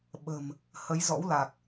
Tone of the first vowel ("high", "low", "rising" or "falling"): low